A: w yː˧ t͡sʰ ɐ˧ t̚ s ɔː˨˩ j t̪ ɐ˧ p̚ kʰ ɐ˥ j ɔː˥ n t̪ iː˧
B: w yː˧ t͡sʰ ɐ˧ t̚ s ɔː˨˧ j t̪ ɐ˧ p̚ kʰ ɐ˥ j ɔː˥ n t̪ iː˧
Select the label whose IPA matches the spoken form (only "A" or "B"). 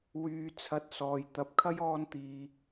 B